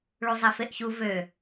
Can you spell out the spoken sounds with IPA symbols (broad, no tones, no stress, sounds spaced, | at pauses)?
ɭ u zˤ ɛ f e ʔ ç u v ø